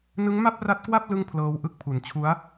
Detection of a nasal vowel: absent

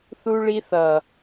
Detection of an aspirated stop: absent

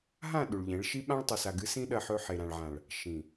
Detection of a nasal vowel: present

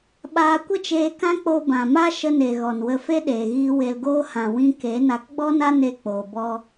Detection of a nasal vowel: present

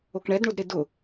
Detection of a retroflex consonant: present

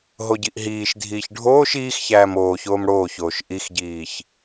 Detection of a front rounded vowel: absent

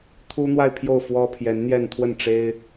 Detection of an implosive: absent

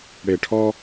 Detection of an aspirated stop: present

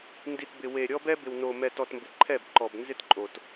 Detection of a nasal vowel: absent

